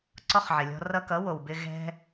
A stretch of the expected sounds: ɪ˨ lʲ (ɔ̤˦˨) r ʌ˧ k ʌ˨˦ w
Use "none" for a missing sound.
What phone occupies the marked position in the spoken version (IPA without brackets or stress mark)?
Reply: ɔ̤˧